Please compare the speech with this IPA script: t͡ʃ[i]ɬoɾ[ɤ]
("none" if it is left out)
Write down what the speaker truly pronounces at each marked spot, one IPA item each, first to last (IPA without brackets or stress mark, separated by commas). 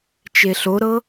e, ɤ